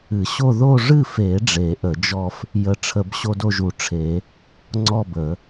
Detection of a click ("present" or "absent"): present